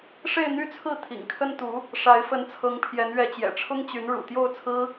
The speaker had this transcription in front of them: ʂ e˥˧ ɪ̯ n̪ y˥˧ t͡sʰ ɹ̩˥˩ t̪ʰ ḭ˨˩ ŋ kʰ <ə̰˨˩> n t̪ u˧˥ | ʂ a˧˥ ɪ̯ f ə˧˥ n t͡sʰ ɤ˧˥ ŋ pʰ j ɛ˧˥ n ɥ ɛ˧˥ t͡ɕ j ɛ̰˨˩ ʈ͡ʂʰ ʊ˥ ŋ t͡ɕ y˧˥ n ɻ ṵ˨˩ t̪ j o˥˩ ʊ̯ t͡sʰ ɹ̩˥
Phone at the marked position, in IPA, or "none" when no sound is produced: ə˥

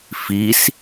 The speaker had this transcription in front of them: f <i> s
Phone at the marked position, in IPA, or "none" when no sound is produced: i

